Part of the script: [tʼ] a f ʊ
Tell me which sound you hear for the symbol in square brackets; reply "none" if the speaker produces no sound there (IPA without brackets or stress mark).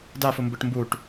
d